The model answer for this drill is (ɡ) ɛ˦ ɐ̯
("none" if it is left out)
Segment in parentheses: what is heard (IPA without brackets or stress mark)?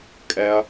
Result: kʼ